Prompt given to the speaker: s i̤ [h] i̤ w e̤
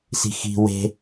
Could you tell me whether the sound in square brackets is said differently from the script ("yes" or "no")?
yes